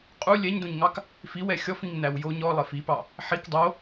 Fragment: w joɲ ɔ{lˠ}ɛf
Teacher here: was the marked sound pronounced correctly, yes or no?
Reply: yes